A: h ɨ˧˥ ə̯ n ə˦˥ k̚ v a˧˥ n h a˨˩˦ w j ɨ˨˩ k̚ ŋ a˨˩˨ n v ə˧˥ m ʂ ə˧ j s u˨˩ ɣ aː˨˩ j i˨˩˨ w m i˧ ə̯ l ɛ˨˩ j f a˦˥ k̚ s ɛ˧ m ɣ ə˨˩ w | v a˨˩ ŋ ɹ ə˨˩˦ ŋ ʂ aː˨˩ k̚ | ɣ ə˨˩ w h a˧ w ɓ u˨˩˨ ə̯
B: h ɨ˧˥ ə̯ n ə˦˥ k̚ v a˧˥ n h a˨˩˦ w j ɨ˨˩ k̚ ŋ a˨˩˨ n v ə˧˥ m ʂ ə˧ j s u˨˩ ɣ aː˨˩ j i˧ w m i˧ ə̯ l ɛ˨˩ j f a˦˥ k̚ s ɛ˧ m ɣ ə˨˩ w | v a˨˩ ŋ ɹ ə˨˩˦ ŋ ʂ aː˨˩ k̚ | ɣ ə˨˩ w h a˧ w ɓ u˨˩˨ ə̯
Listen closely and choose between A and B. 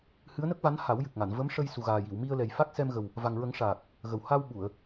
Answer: A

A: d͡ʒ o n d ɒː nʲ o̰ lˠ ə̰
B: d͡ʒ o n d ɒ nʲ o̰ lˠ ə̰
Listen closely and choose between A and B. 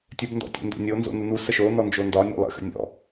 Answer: B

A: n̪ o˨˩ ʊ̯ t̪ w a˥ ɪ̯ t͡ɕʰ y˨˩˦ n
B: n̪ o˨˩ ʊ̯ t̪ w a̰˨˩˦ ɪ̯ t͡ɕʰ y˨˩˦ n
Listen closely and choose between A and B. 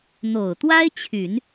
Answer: A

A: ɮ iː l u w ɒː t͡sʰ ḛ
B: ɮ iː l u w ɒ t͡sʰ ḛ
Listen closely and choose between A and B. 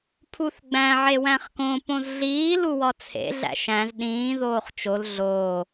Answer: B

